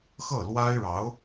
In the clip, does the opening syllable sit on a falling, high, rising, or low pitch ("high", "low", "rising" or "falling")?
falling